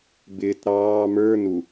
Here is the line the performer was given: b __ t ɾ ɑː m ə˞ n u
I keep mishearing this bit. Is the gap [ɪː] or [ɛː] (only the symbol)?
ɪː